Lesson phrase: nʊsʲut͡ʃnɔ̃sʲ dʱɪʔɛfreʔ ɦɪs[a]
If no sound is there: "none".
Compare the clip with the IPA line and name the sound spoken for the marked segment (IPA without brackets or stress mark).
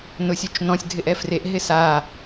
a